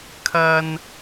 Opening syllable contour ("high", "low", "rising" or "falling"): high